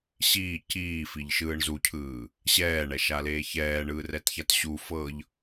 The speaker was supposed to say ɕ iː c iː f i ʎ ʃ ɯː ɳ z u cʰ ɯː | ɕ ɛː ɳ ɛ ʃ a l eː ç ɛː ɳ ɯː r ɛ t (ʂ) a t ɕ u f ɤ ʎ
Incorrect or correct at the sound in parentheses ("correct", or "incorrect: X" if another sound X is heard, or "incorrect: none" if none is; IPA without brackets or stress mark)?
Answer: incorrect: ç